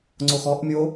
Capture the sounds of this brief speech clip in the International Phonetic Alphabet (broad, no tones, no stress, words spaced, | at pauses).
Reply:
ŋ͡ǀoxɔʔmʲo